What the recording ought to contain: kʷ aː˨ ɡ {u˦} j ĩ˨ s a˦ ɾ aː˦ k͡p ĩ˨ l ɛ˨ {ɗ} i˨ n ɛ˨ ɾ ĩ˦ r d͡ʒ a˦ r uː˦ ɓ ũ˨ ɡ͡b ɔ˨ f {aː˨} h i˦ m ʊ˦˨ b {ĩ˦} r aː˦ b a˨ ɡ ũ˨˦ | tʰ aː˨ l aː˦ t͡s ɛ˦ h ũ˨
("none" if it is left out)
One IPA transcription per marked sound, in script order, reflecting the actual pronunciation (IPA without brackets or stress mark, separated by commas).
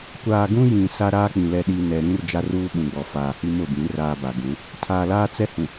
ũ˦, ɗ, aː˨, ĩ˨˦